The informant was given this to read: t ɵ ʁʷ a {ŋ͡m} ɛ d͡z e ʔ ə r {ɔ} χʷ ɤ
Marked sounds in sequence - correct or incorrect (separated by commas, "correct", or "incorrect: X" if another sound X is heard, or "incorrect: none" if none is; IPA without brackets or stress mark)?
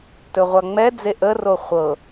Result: correct, incorrect: o